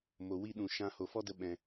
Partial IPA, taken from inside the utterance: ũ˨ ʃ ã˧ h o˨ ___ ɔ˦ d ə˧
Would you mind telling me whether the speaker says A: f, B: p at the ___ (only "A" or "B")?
A